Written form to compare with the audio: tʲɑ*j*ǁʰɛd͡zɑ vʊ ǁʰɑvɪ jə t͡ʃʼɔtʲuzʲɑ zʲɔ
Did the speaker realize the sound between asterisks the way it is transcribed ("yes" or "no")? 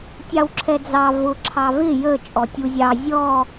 no